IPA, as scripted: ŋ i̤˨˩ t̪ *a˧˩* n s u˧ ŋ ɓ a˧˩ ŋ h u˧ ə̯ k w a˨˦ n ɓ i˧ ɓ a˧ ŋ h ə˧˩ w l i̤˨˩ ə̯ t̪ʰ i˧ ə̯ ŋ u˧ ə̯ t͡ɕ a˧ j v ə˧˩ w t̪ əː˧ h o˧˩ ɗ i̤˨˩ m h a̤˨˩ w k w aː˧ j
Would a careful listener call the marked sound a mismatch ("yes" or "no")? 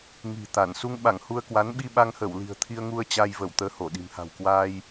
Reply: no